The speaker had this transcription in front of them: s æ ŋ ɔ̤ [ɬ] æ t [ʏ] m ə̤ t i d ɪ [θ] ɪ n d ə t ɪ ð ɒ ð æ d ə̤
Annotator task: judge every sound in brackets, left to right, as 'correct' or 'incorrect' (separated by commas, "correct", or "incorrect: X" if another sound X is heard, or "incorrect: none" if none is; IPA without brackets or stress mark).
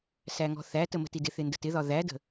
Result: incorrect: θ, incorrect: ə, correct